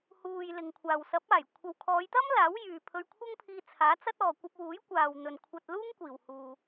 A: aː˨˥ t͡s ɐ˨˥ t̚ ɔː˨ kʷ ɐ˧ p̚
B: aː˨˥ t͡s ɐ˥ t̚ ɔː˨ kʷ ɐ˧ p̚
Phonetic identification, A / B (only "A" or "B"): B